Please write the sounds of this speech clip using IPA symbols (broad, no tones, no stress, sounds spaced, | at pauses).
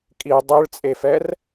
kʼ i dˤ ɯ ɭ t͡sʼ e f ɛ r